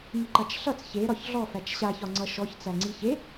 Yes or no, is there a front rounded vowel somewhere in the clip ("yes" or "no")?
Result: no